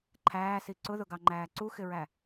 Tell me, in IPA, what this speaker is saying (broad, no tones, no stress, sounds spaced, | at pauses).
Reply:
ǃʰ æː s i ǀ ʊ ð ʊ ɡ ɑ ŋ͡ǃ æː ǀ u x ɪ ɹ æ